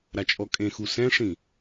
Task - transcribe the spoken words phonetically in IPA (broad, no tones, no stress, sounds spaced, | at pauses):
ɾ a t͡ʃʼ ɔ kʼ ẽ x u s ɛ̃ ʂ ĩ